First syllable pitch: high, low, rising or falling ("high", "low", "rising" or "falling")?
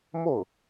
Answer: falling